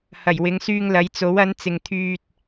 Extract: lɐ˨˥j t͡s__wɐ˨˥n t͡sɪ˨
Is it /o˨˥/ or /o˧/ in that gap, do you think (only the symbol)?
o˨˥